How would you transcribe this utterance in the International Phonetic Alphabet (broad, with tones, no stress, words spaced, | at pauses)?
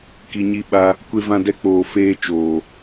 ki˨ɲi˧ɓa˧ | kʷe˧vã˧dɛ˧k͡poː˨ feː˧t͡ʃoː˨